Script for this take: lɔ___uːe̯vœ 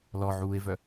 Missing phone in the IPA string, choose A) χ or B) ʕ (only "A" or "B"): B